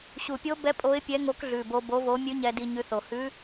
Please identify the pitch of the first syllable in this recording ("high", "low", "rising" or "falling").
low